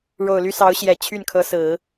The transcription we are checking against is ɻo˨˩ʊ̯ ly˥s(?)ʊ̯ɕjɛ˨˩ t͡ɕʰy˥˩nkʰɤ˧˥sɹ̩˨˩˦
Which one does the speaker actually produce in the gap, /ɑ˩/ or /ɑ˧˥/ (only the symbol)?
ɑ˧˥